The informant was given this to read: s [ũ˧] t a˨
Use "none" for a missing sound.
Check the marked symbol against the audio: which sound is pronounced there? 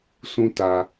ũ˧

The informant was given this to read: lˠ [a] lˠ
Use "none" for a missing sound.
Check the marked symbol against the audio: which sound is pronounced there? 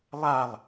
a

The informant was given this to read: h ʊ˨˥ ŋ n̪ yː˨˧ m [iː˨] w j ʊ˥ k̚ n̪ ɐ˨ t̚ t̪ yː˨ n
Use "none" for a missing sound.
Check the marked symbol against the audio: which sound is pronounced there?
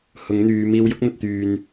iː˧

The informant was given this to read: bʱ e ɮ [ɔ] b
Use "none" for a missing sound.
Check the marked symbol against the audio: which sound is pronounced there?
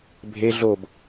o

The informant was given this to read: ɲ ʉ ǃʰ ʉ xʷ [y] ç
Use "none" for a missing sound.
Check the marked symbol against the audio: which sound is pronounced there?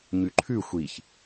i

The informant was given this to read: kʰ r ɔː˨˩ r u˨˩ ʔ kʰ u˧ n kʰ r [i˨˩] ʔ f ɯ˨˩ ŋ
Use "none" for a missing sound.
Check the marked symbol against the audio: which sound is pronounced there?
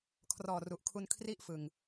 i˥˩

